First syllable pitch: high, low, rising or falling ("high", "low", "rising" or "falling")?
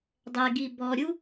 low